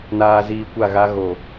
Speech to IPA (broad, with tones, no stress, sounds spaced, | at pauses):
n aː˨ z iː˨ kʷ a˦˨ ɣ a˦ ɣ o˨